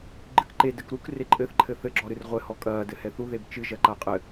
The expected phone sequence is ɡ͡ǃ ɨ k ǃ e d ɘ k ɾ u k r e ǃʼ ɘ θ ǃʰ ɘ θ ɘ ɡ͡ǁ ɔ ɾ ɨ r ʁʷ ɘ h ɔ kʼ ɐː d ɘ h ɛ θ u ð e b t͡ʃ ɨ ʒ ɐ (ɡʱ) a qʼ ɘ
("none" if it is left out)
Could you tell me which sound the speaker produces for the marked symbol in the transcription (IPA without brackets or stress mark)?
ǃ